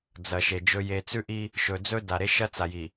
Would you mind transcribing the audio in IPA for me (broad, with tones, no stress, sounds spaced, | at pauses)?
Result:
d͡z ɐ˨ ʃ e˨ d͡ʒ ɵ˨ j e˨ t͡s ʉ˦ ʔ i˦ | ʃ ɵ˨ d͡z ɵ˦ d a˨ ɾ e˦ ʃ ɐ˦ t͡s a˨ j i˨